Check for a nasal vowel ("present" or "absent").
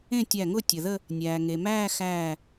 present